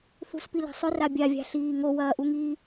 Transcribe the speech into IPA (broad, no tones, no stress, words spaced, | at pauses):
θṳspila̤ sˤʏra bʲavʲa̤ɬiː ŋowɐːʔuŋiː